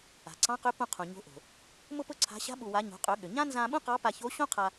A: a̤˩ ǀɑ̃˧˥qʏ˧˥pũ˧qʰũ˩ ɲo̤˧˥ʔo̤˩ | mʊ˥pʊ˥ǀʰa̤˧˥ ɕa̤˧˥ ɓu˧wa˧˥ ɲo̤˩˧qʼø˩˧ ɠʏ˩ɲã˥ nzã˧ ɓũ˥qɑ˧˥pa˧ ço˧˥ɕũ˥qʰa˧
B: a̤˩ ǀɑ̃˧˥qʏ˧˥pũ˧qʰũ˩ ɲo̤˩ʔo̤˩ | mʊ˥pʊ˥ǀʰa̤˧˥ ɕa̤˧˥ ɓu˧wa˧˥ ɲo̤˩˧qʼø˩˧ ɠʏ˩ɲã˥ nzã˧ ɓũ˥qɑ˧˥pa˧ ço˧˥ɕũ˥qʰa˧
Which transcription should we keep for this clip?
A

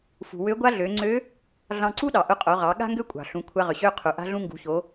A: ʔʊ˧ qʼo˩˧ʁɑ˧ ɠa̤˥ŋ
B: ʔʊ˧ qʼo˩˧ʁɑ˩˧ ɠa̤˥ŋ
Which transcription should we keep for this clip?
B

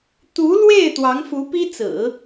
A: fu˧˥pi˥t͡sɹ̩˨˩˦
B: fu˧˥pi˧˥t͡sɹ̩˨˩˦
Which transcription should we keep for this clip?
A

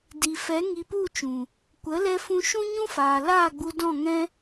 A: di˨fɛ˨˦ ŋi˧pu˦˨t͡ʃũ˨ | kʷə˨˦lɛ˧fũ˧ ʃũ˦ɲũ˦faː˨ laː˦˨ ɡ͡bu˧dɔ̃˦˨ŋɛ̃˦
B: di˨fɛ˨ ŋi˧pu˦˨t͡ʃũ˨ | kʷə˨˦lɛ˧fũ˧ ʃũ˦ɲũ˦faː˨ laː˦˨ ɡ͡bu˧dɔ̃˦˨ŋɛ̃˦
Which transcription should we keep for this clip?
A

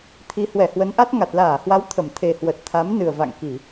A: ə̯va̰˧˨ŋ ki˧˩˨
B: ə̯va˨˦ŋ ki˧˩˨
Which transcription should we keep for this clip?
A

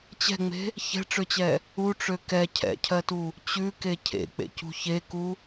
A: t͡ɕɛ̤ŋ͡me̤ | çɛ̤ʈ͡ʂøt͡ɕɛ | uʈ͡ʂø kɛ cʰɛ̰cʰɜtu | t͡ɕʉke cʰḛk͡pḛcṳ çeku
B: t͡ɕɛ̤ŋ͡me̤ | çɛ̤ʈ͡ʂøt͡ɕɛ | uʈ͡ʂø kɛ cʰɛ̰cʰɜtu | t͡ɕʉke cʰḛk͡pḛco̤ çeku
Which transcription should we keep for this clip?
A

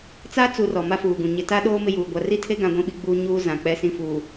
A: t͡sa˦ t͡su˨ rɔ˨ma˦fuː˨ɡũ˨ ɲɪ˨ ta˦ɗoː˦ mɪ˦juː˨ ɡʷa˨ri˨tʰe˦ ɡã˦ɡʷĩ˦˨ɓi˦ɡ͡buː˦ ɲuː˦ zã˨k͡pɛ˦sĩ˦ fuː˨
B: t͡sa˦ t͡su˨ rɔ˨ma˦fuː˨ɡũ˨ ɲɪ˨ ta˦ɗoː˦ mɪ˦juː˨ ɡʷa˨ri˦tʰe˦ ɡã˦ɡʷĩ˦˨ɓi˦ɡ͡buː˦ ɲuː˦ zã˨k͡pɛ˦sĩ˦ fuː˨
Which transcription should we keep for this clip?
B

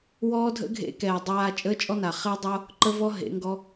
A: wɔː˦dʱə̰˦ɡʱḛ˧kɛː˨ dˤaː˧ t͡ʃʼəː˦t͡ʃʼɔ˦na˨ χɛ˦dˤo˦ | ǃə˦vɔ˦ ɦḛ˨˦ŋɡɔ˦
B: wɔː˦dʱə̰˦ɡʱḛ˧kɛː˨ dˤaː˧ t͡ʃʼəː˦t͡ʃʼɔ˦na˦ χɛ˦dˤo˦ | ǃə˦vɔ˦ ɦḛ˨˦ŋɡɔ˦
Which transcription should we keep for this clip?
A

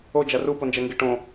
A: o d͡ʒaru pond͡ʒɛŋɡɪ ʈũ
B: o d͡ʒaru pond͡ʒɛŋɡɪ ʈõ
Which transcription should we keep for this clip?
B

